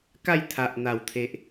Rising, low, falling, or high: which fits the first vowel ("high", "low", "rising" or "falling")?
falling